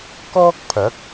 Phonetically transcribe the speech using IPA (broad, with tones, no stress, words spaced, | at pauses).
kɔː˥k̚pʰɐ˨˥k̚